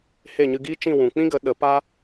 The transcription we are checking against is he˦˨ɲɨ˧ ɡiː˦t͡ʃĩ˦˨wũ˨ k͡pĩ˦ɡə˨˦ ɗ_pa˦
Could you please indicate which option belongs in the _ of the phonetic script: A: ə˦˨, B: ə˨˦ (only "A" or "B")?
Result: B